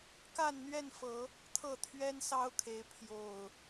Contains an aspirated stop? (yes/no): yes